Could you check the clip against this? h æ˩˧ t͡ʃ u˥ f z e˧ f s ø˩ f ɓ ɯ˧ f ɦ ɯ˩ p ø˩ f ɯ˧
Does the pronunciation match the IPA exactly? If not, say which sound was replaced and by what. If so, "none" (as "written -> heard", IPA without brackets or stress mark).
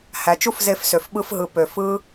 none